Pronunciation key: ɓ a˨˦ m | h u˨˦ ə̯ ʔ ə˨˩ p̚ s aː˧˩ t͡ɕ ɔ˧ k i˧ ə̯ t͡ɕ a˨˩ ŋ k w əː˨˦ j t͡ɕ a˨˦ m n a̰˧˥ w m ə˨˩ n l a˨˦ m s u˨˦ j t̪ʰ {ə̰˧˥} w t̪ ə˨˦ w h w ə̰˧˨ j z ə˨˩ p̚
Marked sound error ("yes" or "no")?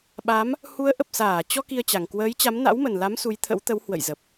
no